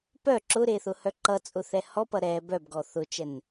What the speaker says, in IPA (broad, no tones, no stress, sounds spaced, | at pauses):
p œ ǁ ʊ ɾ e θ ʊ h œ ǃ ʌ t͡sʼ ʊ θ ɛ h ɔ p ʌ ɾ ɛ b œ b ɡ ɔ θ ʊ t͡ʃ ɛ n